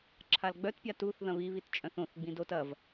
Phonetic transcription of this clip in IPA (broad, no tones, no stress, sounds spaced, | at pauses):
ǁʰ a l ɡ͡b œ t pʲ a t u θ ð ɐ̃ β i β i t t͡ʃʼ œ̃ θ õ θ ɡ͡b ĩ d o t ɐ v